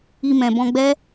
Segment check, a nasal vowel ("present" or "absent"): present